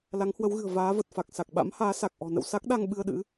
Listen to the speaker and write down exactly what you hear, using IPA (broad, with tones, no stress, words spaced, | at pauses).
la˨˦ŋhwə˨˦wɣɨ̤˨˩ə̯ vaː˨˦və˨˩t̚fa˨˩k̚ sa˨˩k̚ɓa̰˧˥mhaː˨˦ sa˨˩k̚ʔɔ̤˨˩nə̰˧˨w sa˦˥k̚ɗa˧ŋ ɓɨ˧ə̯ɗɨ̰˧˥